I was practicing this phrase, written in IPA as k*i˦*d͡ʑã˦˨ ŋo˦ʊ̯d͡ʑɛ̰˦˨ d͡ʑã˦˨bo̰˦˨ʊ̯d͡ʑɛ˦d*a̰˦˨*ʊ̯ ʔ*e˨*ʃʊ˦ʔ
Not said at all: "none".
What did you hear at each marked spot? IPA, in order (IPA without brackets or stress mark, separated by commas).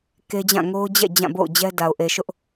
e˦, a˨, e˨